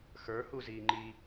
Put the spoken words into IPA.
x ə˞ h u z iː ŋ͡ǃ i

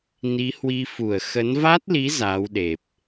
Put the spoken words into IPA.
n i˨˦ h w i˧ f u˧˩ ə̯ x ə˨˦ n v a˦˥ t̚ l i˨˦ z aː˨˦ w ɗ e˨˩ p̚

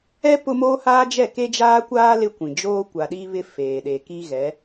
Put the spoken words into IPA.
ɛ˦ p ʊ˦ m oː˦ h aː˦ d͡ʒ ɛ˦˨ k e˦ d͡ʒ aː˦ kʷ aː˦ l ɪ˦ kʷ ĩ˨ d͡ʒ oː˦ kʷ a˨ ɗ iː˦ β ɪ˦ f eː˨ ɗ e˨ k i˦ ɣ ɛ˨˦

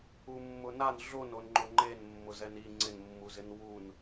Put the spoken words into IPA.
u mː ʊ n a n ɮ o n o n ŋ͡ǃ ʊ ŋ͡ǃ e n mː ʊ z ɛ n i ŋ͡ǀ ɪ n mː u z ɪ n w u n

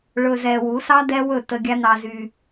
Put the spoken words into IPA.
ɭ ɵ˧ z ɛ˧ w u˨˦ s ɑ˦ d ɛ˦ w ɵ˦˨ t ə˧ ɡʲ a˦ n ɑ˧ z y˧

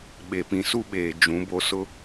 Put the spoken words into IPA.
ɓ e˨ p ĩ˨ s u˦ ɓ eː˨ d͡ʒ ũ˨˦ b o˦ s ʊ˦

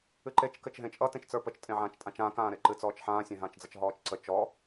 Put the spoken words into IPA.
ɨ ǃ e t͡ʃ k ɘ t͡ʃ ɦ ẽ t͡ʃʼ ʌ t ẽ t͡ʃ t͡s ə˞ p ə t͡ʃ tʼ ẽ ʕ ãː t͡ʃ tʼ ã t͡ʃ ãː k ãː ɾ e ǃ ɨ t͡s ɔː t͡ʃ ħ ãː sʲ ẽ ɦ ãː t͡ʃ d͡z ʌ t͡ʃ ɦ ɔː t͡ʃ ǀ ə t͡ʃ ɔ

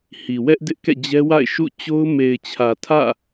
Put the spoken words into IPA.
h i˨ w ɛ˦ ʔ d ɪ˦ ʔ k ɛ̰˦˨ d͡ʑ ɛ˦ w a̰˦˨ ɪ̯ ʃ ṵ˦˨ t͡ɕ o˦ ʊ̯ m e˨ ɪ̯ t͡ɕʰ ä˨ tʰ ä̰˦˨

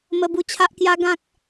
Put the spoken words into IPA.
m ə˧ b u˧ t͡ɕʰ a˦ ʔ k j a˦ ɡ ã˦ k̚

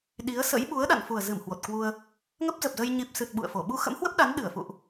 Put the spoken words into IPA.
ɗ i˨˦ ə̯ s ə̰˧˥ j ɓ u˨˦ ə̯ ɗ a̰˧˨ n f u˨˩ ə̯ z ɨ˧˩ m h w o˨˩ t̚ k w u˧ ə̯ | ŋ ə˦˥ p̚ z ə˨˩ p̚ z ə˧ j ɲ i˨˩ p̚ s ɨ˨˩ t̚ ɓ ṵ˧˨ ə̯ f o˧˩ ɓ u˧ x ə̰˧˥ m h w ə˦˥ p̚ ɗ a˨˦ n ɗ ɨ˧˩ ə̯ f ṵ˧˨ ʔ

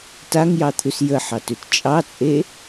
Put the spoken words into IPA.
t a ŋ j ɑ t̪ʰ ʉ s j ə ħ ɑ t ʉ t t͡ʃʼ ɑ t͡sʼ e

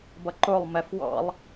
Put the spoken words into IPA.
b ʌ ǃ ʊ lˠ m ɛ f w ɑ̰ lˠ

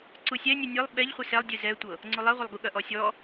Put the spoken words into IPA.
ǀ u sʲ ɛ nʲ ɨ nʲ ɨ lˠ ɓ ɛ ʎ χʷ ɨ s ɛ lˠ dʲ ɨ z ɛ tʷ ɤ | ŋ͡ǀ u lˠ ɛ ʁʷ ɐ lˠ ɡ u ɠ ɐ ʔ ɔ sʲ ɔ

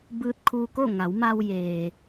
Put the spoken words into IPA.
b ɯː˧ t̚ kʰ uː˧ k o˥˨ ŋ a˩˧ w m a˧ w j eː˩

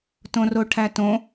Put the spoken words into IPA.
t õ r o ʈʰ æ t õ

